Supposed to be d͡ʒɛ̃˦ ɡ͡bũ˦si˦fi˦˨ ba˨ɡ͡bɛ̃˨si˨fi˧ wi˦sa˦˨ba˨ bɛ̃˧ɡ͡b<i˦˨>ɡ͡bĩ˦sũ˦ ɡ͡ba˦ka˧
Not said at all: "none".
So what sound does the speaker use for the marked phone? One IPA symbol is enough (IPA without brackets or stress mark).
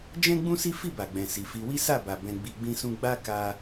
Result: i˧